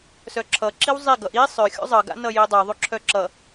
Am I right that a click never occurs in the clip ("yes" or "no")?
no